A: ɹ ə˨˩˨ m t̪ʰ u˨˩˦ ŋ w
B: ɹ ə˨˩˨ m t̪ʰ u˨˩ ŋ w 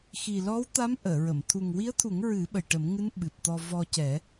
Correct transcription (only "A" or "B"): B